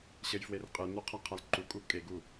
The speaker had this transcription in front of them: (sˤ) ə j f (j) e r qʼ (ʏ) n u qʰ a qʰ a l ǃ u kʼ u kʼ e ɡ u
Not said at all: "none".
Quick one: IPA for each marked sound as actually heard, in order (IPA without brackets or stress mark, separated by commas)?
ɕ, w, ɨ